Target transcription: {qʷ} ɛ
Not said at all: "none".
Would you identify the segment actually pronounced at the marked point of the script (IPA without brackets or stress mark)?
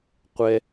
qʷ